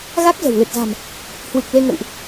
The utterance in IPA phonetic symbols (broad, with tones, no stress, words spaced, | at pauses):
ɣa˦˥k̚zə̤˨˩wlɨ˨˩t̚za̤˨˩m | hwɨ˨˩k̚ le˧ŋə̰˧˨wʔ